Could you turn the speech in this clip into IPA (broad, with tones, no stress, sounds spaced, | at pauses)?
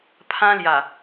pʰ ã˦ l j a˨˩